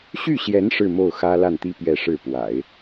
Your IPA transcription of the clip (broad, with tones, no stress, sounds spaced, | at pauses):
ɕ y˥˩ ɕ j ɛ˧˥ n ʂ ɻ̩˥˧ m o˥˩ ʊ̯ x ä˥ l a˥˩ n t̪ i˥ p ɥ ɛ˥˧ ʂ ɻ̩˥˩ p w a̰˨˩˦ ɪ̯